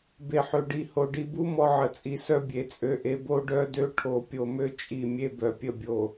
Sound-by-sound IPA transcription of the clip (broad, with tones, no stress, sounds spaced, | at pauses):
b e˨ ħ ø˨ ɖ i˨ h o˨ ɖ i˨ b u˦ m ɔ˦ ʕ ə˨ t͡sʼ i˨ s œ˦ bʲ e˨ t͡sʼ ø˦ ʔ e˦ b o˦ ɖ œ˦ d ø˦ ʈʰ o˨ pʲ o˨ m ø˦ t͡ʃʼ i˦˨ mʲ e˦ b œ˨ pʲ ə˦˨ bʲ o˨